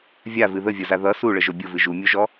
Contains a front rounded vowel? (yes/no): no